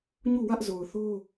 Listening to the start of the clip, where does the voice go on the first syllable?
falling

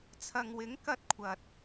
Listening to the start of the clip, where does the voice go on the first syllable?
low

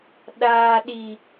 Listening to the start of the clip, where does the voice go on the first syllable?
low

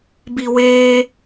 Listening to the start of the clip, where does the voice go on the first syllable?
low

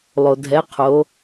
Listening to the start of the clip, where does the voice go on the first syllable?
low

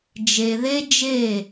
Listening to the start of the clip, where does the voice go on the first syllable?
low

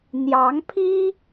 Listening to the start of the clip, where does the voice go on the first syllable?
rising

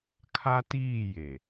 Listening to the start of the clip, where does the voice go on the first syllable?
high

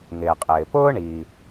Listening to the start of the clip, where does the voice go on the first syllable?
low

